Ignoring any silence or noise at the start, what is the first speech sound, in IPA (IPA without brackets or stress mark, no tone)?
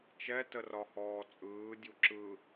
t͡ʃ